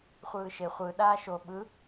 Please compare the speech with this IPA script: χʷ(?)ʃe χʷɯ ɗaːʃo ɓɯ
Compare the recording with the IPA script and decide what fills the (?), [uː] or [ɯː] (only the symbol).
ɯː